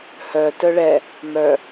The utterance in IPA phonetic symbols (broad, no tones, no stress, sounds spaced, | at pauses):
h œ t œ ɭ ɛ | m œ